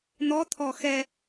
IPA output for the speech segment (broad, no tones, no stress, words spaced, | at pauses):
n̪ɔt̪ʰɔ xɛ